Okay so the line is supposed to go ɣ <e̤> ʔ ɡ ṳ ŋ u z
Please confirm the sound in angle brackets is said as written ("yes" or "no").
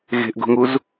yes